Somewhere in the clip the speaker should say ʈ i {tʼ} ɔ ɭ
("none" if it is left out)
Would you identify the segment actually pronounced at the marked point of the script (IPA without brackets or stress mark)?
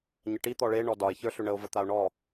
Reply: t̪